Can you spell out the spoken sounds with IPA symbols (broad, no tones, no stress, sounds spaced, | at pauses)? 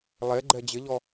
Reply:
lˠ e ɡ͡ǃ ɛ d͡ʑ ɪ ʎ ɔ